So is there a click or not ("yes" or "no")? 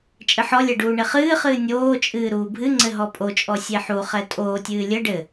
yes